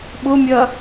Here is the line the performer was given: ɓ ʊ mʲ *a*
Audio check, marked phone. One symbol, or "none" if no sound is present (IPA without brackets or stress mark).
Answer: ɐ